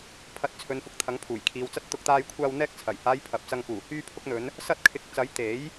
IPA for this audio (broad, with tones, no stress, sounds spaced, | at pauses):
pʰ ɐ˨˥ t̚ t͡sʰ ɵ˨ n f ʊ˨ k̚ t̪ʰ ɐ˨˥ ŋ pʰ uː˨˩ j kʰ iː˨ w t͡s ɐ˥ t̚ t̪ ʊ˧ k̚ t̪ aː˧ j kʷʰ aː˧ w n̪ ɛː˧ k̚ t͡sʰ ɐ˨˩ j h aː˨˧ j pʰ ɐ˨ p̚ t͡s ɐ˧ ŋ k uː˨˩ h yː˧ pʰ ʊ˧ k̚ n̪ ɵ˨˧ n | s ɐ˧ t̚ kʰ ɪ˨˥ k̚ t͡s ɐ˨˥ j t̪ e˨˥ j